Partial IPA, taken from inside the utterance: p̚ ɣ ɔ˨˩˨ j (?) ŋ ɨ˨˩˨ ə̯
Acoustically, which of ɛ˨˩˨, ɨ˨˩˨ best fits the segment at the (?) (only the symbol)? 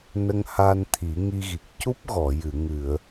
ɨ˨˩˨